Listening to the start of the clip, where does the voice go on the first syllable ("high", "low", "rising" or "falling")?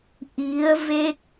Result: rising